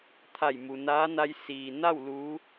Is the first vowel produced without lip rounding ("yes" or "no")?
yes